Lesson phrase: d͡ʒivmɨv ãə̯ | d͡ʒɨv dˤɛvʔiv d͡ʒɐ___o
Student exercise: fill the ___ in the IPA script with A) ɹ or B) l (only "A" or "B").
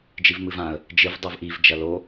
B